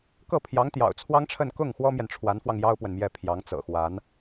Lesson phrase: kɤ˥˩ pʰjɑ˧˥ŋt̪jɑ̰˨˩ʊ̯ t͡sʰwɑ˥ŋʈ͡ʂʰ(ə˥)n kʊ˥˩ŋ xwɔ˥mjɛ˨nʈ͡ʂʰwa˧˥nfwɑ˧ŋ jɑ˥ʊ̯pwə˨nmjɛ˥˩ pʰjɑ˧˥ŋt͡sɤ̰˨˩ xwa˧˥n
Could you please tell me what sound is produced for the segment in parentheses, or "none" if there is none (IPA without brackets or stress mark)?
ə˥˧